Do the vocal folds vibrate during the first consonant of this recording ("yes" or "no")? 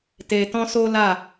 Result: no